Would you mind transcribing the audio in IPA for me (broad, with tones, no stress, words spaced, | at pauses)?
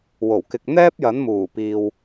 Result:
wo˨˩wkɪ˨k̚ n̪ɛː˥p̚jɐ˨˥nmuː˨˩ piː˨w